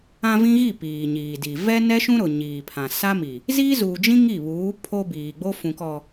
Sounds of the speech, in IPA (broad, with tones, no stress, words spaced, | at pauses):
ã˦vĩ˦ɣi˦˨ piː˨ɲiː˨di˨ vɛ˦nɛ˦ʃũ˦ ɾʊ˨ ɲiː˨pʰã˨ sa˦mi˨ | zi˦zuː˨d͡ʒĩ˦ ŋi˦˨βuː˨˦ pʰo˦biː˨ɡ͡bo˦ fũ˨kɔ˨